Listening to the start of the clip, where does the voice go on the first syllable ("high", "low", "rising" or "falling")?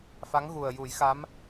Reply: rising